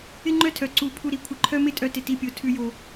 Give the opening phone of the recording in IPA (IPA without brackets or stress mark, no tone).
ɪ